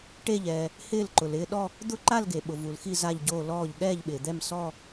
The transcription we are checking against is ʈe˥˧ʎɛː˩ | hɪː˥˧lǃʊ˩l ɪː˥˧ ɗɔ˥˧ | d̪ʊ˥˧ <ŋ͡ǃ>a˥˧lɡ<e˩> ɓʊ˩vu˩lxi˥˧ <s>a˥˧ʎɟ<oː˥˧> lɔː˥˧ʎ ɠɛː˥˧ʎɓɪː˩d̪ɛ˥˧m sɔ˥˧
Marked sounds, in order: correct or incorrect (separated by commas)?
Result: incorrect, correct, incorrect, correct